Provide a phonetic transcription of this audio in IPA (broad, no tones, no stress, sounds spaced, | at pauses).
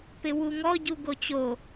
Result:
p ɪ w u ŋ ɔ ɟ u ɡ o t͡ɕ o